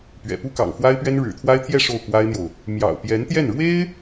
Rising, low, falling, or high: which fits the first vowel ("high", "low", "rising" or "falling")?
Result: low